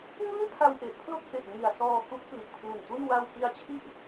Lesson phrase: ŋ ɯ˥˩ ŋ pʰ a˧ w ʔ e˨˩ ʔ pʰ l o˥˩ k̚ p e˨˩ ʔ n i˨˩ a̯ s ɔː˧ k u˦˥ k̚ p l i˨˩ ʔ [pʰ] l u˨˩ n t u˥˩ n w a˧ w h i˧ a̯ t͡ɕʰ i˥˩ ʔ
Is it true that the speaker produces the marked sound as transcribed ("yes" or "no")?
yes